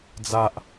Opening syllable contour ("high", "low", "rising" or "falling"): low